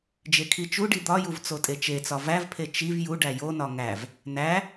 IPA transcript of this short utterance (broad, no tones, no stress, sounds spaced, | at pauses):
d͡ʒ e kʰ i t͡ʃ u ɖ i d̪ ɒ j u v t͡s o tʼ e t͡ʃ e t͡s ɒ v æ v pʰ e t͡ʃ i v j u ɖ æ j o n ɒ ŋ æ v | n æ